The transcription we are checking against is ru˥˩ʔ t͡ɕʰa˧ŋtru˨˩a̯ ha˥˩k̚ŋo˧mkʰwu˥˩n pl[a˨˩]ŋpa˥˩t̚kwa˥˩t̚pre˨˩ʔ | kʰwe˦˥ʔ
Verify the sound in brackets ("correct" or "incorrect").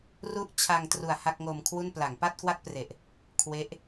incorrect